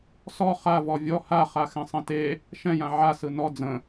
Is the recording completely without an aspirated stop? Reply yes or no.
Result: yes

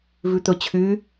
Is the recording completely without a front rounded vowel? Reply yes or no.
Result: no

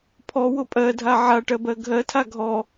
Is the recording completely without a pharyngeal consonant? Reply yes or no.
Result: no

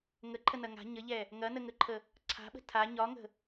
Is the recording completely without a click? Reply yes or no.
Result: no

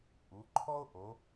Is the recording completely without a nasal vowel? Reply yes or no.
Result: yes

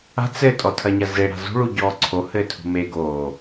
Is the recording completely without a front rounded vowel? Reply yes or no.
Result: yes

